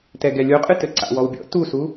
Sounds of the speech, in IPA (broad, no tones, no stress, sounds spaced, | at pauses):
t ɛ ɡ ɛ lʲ o qʼ ɨ t ɘ ǀ a̰ w ɔ w bʲ ɔ̰ t u s u